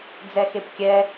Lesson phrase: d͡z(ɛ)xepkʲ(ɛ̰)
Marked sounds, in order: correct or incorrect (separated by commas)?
correct, incorrect